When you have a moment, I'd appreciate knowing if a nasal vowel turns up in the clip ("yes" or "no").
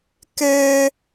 no